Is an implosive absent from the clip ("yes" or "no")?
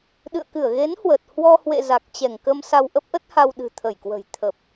no